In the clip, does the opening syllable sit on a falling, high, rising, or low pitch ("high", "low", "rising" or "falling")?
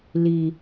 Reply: low